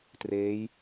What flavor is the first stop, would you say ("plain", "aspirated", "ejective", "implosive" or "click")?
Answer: plain